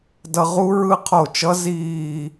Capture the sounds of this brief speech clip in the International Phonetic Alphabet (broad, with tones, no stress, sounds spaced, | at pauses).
d ʌ˧ ʁ u˦˥ ɹ ɯ˦˥ qʰ o˧˩ t͡ʃ ʌ˦˥ z iː˧˩